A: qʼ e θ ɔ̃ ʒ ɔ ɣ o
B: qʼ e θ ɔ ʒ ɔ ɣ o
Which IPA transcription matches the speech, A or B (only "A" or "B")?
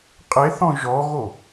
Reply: A